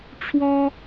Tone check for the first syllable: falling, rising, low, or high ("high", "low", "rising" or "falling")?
high